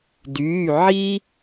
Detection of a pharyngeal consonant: present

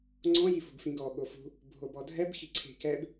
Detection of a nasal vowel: present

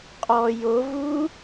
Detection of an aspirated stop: absent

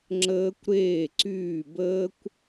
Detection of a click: present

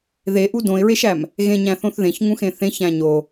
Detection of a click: absent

